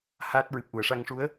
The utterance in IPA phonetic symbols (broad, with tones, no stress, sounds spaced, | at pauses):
h aː˦˥ t̚ ɹ ɨ˨˩ p̚ ʔ u˨˩˨ ə̯ ʂ a˧ ŋ ʂ u˧˥ ə̯